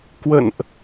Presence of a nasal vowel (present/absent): absent